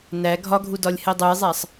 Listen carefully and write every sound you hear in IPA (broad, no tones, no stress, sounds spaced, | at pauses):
n æ ɡʱ ɒ ɡʱ u d ɒ lʲ h e dˤ u j zˤ æ sˤ